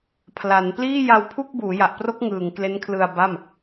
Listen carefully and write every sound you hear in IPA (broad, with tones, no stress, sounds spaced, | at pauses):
pʰ l a˩˦ n p l iː˥˩ j a˧ w pʰ u˥˩ k̚ b uː˩˦ j a˨˩ ʔ p r o˦˥ k̚ ŋ ɯː˨˩ ŋ k l e˦˥ n kʰ l ɯ˧ a̯ b a˥˩ m